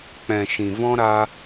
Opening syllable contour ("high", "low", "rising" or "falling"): low